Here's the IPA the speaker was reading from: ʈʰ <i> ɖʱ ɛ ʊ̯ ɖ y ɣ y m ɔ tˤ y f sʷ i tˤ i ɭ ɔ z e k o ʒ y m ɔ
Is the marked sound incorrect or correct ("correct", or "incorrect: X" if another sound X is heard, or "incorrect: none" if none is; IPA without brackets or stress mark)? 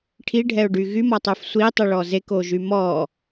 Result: correct